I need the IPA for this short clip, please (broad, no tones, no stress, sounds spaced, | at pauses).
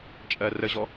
t͡ʃʼ ɜ r ə ʑ ɔ